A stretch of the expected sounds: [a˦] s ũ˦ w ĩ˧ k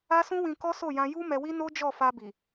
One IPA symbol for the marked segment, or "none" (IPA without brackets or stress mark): a˦